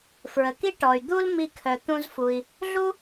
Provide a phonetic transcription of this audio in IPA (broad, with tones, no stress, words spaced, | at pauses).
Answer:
fɹə˩ki˥ ʈɔ˩y̯ d̪u˥l mi˧kʰœ˩ t̪ũ˧zfu˩i̯ | ɮu˥